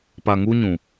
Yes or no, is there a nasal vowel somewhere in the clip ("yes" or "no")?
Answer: yes